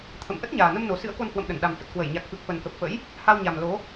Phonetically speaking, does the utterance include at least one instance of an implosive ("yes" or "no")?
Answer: yes